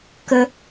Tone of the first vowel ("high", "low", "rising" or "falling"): high